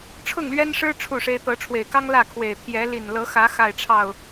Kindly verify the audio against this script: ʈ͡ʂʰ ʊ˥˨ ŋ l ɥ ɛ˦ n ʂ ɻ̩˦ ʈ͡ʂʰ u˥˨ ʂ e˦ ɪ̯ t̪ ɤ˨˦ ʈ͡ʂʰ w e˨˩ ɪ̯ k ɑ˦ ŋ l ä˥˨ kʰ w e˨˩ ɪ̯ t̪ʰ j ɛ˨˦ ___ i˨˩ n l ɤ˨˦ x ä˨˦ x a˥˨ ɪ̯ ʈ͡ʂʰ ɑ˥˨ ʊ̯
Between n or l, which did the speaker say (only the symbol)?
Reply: l